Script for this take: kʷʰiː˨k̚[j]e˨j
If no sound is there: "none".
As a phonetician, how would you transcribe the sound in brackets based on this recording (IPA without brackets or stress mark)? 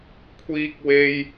w